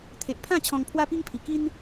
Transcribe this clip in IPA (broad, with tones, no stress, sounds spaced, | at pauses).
t̪ʰ e˨ ʔ pʰ ã˥˧ t͡ɕʰ ɔ̃˧ ŋ pʰ w a˦ p i˦ ŋ pʰ i˨˩ k i˦ n